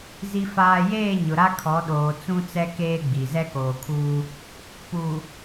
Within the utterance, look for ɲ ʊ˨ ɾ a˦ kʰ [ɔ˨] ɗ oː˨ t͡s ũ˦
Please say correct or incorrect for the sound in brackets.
incorrect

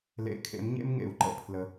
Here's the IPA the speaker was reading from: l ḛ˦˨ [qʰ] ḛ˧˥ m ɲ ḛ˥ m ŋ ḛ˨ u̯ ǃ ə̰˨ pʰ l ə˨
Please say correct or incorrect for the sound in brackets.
incorrect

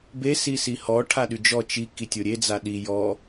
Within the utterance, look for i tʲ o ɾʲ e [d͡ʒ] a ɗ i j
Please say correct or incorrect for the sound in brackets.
incorrect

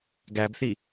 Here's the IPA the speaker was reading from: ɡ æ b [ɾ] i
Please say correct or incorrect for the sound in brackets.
incorrect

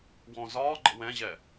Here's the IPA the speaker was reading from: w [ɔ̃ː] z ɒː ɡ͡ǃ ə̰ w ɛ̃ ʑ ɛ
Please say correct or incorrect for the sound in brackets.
incorrect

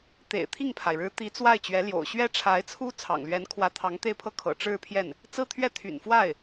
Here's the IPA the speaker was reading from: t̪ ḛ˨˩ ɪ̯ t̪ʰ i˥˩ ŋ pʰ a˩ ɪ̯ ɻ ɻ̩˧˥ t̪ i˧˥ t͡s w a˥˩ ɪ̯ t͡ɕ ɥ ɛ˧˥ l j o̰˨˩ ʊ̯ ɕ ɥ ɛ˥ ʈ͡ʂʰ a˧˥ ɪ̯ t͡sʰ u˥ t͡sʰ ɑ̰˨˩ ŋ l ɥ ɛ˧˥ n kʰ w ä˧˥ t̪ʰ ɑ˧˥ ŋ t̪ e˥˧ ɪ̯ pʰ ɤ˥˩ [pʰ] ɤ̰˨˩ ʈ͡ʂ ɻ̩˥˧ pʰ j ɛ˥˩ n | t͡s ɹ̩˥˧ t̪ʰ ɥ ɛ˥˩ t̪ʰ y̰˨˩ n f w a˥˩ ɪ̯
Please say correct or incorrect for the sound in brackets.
incorrect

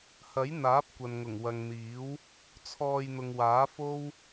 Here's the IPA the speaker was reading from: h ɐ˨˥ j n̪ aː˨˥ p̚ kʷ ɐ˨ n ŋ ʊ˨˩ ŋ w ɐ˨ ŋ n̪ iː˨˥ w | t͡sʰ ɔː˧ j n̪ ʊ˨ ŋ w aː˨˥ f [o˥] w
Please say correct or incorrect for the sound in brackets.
correct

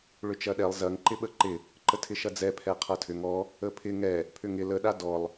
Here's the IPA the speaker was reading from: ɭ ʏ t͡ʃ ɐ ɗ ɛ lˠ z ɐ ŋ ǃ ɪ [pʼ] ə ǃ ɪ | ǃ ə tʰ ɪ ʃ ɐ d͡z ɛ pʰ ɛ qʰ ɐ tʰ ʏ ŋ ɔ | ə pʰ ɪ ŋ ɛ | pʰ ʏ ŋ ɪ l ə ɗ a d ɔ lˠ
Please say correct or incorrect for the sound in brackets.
incorrect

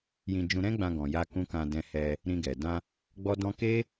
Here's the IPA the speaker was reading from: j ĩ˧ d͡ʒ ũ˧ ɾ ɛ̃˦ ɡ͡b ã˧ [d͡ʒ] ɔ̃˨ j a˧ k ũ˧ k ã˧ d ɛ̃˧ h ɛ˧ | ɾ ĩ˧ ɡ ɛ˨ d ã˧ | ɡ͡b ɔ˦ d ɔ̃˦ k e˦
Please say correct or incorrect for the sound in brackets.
incorrect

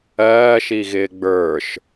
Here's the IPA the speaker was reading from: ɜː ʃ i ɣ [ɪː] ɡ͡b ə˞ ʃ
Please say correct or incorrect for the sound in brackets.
correct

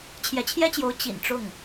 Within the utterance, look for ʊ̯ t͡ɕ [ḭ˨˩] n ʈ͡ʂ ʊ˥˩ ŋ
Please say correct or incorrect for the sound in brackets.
correct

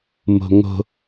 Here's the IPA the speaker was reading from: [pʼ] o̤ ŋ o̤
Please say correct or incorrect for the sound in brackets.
incorrect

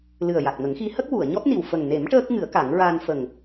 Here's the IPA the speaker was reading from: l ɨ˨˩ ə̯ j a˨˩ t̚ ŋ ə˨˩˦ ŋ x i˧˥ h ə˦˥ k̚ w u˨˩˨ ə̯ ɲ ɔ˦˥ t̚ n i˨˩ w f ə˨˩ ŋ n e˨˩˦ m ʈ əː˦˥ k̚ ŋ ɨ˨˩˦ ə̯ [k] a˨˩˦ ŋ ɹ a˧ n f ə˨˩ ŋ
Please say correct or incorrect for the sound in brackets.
correct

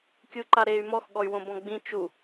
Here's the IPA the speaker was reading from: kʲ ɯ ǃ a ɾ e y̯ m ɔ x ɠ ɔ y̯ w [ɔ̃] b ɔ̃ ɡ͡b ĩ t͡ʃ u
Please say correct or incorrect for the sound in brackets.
incorrect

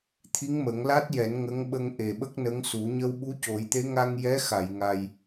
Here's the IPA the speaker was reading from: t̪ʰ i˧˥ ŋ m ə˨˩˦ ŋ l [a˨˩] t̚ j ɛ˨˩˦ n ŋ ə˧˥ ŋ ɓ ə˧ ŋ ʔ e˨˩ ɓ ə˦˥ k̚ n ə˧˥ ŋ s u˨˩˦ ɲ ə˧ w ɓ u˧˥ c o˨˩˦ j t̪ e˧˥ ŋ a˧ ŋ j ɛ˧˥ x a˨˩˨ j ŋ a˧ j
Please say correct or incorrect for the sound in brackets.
incorrect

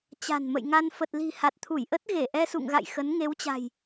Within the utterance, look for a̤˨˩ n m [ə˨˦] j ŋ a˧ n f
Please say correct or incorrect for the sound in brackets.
incorrect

